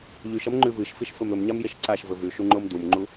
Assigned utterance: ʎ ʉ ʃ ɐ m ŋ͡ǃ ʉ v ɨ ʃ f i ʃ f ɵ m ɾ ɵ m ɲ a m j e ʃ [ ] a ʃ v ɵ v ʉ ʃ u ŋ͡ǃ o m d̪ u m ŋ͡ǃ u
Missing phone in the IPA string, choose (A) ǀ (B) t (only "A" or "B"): A